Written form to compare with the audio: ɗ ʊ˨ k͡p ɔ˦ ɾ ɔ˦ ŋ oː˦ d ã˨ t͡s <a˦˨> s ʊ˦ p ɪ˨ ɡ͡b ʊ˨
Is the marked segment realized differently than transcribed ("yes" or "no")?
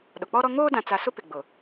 yes